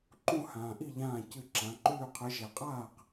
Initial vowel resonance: nasal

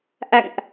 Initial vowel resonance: oral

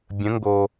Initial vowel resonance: nasal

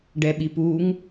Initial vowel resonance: oral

